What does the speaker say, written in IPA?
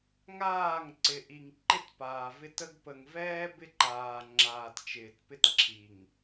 ŋ aː˦˨ ŋ ǀ ɪ˨ ʔ i˨ ŋ ǃ ɪ˦˨ t p aː˨ v ɪ˦ t ə˦ ɡ p ə˨ ŋ v ɛː˦ b ɪ˦ ǃ aː˨ ŋ͡ǁ aː˨ t t͡ʃ ɪː˨ t p ɪ˦ t ǁʰ i˨ ŋ

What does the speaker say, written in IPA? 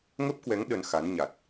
ŋ ə˦˥ p̚ k w ɛ˨˦ ŋ ɗ ə˧ n x a˨˦ n ɲ a˨˩ t̚

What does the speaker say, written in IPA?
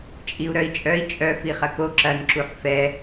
t͡ʃʼ i u̯ ɾ œ i̯ t͡ʃʼ œ i̯ t͡ʃʼ œ f i χ ɐ k o ǁ ɐ n ǁ u ħ f ɛ

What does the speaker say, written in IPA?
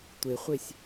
tʷ e χʷ e sʲ

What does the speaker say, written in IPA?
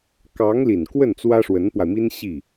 k ɑ˧˥ ŋ l i˨˩ n k w ə˥˩ n t͡s w ä˥ ʂ w ə˧˥ n p w a˧ ɪ̯ m i˥ n ɕ i˥˩

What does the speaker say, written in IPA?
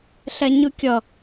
ɬ ɛ ɲ ɯ kʲ ʌ

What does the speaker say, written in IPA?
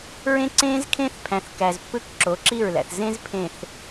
ɹ ẽ˦ ǀ ẽː˦ z kʰ ẽ˦ θ pʰ æ̃˨ θ k æ˨ z pː ɯ˦ k ǁ o˨˦ ǁ i˦˨ ɹ l æ̰˨ θ z ẽ˦ z pʰ ẽ˨ θ

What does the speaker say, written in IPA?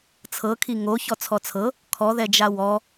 t͡sʰ ɤ kʰ i ŋ o ç ɔ t͡sʰ ɔ t͡sʰ ɤ | kʰ ɔ ð ɛ d͡ʒ a w ɔ

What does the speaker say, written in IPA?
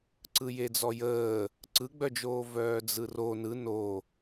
ǀ ɯ j e d͡z ɔ j əː | ǀ ɯ ɡ͡b œ d͡ʒ oː v œː d͡z ɯ r o n ɯ n o

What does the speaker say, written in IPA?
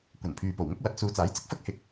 kʷ ɐ˨˩ n pʰ yː˨ p o˨˩ w ŋ ʊ˥ k̚ w ɐ˨˥ t̚ s uː˨ t͡s aː˨˥ j t͡s ɪ˨ k̚ f ɐ˥ k̚ h ɪ˨ k̚

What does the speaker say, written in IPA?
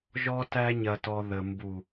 ʒ ɔ˧ t æ˧ ɲ ɐ˨ t ɔ˨ ð ə˨ m b u˨

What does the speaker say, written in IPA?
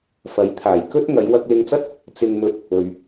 f ɐ˨˥ j t̪ʰ aː˨˩ j k ɵ˥ t̚ ŋ ɐ˨˧ j w ɐ˧ k̚ l ɪ˧ ŋ t͡s ɐ˥ t̚ | t͡s ɪ˨ ŋ m ɵ˨˥ t̚ | ɵ˨ ɥ

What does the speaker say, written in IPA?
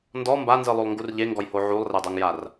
n d ɔ m b a n z ɯ lˠ o lˠ ŋ ɡ u r ʎ e ŋ ɡ ɔ j h o ʕ u lˠ r ɛ dˤ o ŋ j a r

